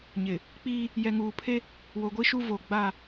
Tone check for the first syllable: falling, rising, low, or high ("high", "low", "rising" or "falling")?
low